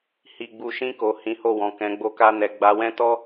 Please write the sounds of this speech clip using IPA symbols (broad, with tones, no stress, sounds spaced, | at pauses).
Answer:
h i˨ ɡ͡b u˨ ʃ ĩ˧ k o˨ h ĩ˨˦ h o˦˨ w ɔ̃˨ k ɛ̃˨˦ ɡ͡b o˦ k a˦ n ɛ˧ ɡ͡b a˧ w ɛ̃˦ t ɔ˦